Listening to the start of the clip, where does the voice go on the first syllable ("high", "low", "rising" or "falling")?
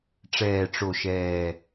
low